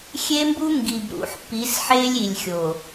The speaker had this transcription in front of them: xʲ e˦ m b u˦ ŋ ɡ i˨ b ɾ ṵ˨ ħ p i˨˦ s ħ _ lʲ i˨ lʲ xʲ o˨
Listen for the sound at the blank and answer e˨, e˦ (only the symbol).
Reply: e˦